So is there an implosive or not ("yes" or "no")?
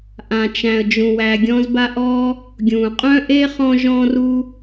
no